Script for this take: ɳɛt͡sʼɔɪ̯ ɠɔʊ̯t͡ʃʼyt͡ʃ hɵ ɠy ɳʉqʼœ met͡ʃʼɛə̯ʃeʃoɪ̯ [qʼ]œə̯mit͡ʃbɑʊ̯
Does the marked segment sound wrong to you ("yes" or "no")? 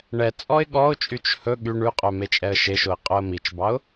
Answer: no